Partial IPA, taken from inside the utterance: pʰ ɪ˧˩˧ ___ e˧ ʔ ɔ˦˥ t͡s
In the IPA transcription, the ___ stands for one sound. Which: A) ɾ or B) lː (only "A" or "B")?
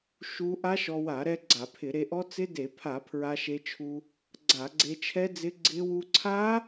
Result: A